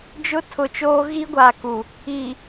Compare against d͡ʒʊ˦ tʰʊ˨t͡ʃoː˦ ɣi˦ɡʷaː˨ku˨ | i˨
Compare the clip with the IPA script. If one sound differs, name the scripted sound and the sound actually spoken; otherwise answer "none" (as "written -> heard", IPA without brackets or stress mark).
none